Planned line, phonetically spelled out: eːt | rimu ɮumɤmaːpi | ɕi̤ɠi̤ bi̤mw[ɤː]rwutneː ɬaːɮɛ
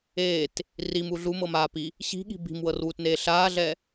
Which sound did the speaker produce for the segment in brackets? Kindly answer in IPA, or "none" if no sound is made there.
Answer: ɤ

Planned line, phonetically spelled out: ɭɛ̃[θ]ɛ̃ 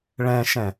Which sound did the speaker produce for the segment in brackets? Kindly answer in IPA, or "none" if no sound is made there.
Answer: ʃ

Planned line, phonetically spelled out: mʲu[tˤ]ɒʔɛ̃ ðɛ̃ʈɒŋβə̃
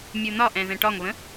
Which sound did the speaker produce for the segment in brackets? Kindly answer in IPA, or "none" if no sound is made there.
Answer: n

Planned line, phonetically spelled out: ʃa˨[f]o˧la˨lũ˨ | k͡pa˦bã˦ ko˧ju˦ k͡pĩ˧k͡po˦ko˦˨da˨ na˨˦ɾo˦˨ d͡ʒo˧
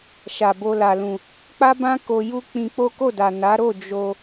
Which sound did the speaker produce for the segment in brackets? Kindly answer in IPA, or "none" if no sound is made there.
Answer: b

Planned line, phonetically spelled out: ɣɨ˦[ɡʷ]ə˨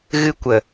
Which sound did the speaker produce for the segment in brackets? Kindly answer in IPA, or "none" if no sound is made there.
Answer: kʷ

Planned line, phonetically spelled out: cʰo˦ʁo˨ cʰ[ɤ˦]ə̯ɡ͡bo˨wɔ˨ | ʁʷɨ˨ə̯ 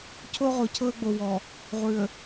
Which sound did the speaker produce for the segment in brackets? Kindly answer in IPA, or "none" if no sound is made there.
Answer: ɤ˦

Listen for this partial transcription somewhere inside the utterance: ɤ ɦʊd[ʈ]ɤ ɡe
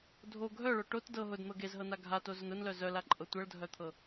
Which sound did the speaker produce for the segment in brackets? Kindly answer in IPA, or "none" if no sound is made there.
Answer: n̪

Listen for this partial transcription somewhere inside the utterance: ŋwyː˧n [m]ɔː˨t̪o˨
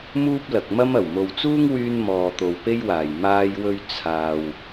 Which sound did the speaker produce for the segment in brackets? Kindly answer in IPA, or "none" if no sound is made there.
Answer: m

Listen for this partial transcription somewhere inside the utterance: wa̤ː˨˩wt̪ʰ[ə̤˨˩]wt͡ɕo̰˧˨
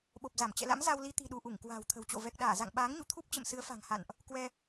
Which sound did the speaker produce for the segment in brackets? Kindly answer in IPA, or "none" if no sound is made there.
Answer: ə̤˨˩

